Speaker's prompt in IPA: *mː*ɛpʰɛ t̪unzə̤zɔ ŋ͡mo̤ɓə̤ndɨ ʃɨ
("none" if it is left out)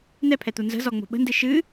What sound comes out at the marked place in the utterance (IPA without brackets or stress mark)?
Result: n̪